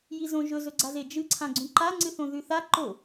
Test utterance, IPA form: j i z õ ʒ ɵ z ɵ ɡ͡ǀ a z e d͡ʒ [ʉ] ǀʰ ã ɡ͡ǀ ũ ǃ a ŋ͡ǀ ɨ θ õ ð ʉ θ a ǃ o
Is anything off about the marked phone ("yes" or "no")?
yes